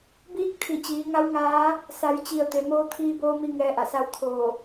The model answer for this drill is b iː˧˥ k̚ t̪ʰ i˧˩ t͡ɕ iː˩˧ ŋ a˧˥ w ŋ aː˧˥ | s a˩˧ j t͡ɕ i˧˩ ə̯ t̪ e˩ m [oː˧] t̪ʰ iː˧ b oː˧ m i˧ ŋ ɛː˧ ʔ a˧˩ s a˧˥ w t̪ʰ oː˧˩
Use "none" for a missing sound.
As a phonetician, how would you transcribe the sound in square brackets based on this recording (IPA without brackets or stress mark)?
oː˧